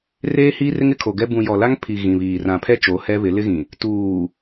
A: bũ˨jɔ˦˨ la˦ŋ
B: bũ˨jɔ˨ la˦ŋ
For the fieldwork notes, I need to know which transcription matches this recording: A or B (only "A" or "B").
B